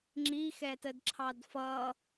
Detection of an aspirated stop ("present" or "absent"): present